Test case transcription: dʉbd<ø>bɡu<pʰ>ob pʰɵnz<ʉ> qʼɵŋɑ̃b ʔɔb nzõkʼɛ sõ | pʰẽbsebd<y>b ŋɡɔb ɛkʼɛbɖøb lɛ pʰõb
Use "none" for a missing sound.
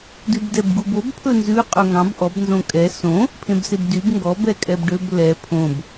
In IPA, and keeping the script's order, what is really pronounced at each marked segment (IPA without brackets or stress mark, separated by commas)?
ɛ, b, ʉ, y